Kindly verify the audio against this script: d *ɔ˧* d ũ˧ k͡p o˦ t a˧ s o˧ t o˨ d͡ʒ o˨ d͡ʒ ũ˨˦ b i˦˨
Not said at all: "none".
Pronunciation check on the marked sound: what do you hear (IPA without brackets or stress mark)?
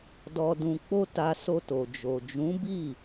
ɔ˧